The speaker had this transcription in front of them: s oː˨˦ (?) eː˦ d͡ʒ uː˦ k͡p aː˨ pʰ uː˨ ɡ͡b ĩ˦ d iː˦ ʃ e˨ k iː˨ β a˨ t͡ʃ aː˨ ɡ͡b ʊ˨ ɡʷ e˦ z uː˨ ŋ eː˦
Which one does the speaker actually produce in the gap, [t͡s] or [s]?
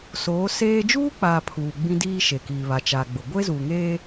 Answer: s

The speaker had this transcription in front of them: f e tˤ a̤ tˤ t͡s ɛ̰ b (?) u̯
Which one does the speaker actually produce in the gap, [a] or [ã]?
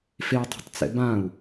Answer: ã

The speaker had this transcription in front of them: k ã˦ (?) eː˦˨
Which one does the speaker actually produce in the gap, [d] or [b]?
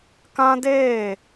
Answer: d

